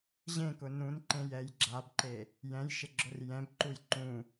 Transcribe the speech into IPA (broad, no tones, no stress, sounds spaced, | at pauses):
ʑ ẽ k ʊ n ũ n ǃ ẽ j ɛ j ɡ͡ǁ a b ǃ e | j ɛ̃ j ʃ ɪ ɡ͡ǁ ʊ r j ɛ̃ b ǃ u j ǃ ũ